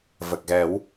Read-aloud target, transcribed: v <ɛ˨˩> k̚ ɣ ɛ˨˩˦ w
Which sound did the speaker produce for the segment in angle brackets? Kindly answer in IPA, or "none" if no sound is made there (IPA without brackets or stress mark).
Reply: ə˨˩